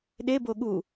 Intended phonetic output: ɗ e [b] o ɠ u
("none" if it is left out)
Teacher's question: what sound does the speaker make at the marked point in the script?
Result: b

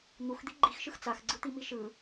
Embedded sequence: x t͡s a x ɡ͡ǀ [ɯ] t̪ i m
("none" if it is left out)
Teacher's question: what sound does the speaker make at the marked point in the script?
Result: ɯ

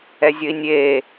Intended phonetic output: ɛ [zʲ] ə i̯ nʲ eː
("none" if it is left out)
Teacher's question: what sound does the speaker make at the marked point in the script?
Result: zʲ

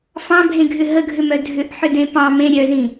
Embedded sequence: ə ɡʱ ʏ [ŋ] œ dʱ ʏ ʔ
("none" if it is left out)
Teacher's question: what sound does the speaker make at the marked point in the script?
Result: m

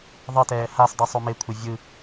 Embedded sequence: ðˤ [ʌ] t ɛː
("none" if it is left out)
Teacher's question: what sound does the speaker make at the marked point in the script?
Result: ʌ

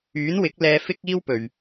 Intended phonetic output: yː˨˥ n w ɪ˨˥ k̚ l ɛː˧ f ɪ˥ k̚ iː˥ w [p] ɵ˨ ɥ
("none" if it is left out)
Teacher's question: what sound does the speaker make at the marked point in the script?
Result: p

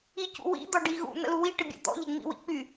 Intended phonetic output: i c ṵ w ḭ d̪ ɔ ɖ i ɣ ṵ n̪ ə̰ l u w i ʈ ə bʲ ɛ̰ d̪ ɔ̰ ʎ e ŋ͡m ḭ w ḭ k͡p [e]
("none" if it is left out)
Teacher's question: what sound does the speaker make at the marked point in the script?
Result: y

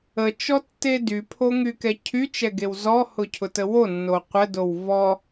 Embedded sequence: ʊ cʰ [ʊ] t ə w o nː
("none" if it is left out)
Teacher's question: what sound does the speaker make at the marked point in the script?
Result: ʊ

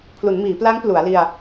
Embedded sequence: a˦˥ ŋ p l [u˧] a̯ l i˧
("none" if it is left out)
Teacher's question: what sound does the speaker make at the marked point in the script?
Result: u˩˦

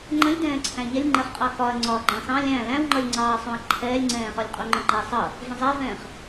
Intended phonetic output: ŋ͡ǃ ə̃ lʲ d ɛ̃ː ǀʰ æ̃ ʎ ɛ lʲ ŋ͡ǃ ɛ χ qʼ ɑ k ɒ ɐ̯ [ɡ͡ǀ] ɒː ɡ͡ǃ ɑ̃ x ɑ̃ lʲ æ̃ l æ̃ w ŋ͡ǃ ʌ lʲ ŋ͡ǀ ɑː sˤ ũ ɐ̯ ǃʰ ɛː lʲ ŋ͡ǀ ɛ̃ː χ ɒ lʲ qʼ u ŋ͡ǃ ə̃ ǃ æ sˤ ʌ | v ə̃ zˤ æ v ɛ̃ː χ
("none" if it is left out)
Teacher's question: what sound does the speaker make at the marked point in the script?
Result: ŋ͡ǀ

